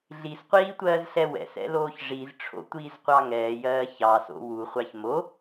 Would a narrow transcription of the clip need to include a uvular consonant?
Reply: yes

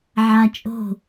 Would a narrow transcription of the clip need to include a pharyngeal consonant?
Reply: yes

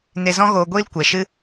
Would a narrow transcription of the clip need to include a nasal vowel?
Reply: yes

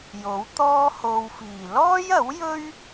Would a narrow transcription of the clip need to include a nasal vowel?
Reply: no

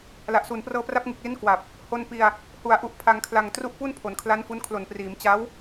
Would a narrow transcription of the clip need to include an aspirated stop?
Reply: yes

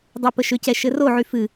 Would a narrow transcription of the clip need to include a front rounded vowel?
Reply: yes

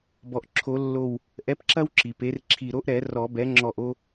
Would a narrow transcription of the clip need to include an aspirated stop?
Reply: yes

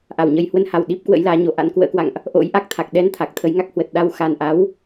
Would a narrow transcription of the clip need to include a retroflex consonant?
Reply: no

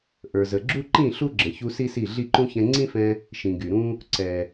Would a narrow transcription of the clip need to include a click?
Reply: yes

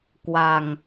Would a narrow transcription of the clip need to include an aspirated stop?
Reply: no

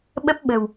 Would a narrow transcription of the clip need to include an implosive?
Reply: yes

